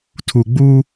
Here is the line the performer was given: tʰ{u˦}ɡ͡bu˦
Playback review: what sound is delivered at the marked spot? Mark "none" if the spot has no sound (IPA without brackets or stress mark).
u˨